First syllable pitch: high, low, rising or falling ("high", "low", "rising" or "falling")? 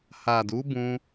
low